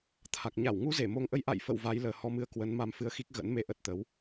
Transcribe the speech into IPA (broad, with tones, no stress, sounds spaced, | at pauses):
t̪ʰ a˨˩ k̚ ɲ a˧˩ w ŋ u˧ z e˧˩ m o˧ ŋ ʔ ə˧ j ʔ a̰˧˨ j f ə̰˧˨ w v a˨˦ j l əː˨˩ h ɔ˧ m ɨ˧ ə̯ k w ə˨˦ n m a˧ m f ɨ˧ ə̯ x i˦˥ k̚ ɣ ə̰˧˥ n m e˨˦ ʔ ə˨˩ t̚ t̪ ə˨˦ w